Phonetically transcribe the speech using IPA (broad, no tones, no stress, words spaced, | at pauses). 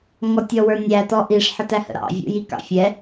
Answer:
ŋɔtʲɔwə˞nʲæ tɔʔiʂ ħətæhə̰ɾɑ̰ vʲṵjikɑ̰fʲɛ